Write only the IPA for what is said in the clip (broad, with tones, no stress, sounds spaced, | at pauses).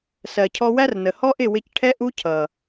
s ɜ˨ cʰ ɔ˧ w æ˦ r n ə˨ h ɔ˦ ʔ ɪ˦˨ w ɪ˧ c ʈʰ ɛ˦ ʔ u˦ cʰ ʌ˨